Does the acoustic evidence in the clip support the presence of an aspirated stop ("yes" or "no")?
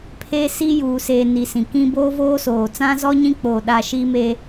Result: yes